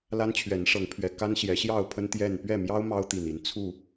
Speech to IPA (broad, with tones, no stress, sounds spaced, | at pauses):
l a˦ n t͡ɕʰ ɥ ɛ˨˦ n ʂ ɤ˨˦ ŋ pʰ ɥ ɛ˨˩ k a˦ n ɕ j ɛ˨˦ ɕ j ɑ˥˨ ʊ̯ pʰ ə˦ n t̪ j ɛ˥˨ n p ɥ ɛ˥˨ m j ɑ˦ ʊ̯ m ɑ˦ ʊ̯ t̪ i˨˩ n i˨˦ n t͡sʰ u˥˨